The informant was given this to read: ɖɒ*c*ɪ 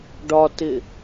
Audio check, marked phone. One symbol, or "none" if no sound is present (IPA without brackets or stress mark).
t